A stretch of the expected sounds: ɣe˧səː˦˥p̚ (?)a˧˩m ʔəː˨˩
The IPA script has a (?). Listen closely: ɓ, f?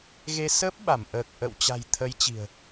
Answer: ɓ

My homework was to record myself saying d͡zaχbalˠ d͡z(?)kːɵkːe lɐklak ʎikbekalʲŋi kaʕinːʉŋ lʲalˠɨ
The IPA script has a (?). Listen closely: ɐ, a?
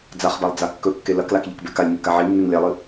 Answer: a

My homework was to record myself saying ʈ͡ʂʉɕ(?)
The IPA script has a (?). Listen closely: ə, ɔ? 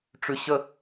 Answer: ə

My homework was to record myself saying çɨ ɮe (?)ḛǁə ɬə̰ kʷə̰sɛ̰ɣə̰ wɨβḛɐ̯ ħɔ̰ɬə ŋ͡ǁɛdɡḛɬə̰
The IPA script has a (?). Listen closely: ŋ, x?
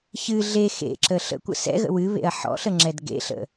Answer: x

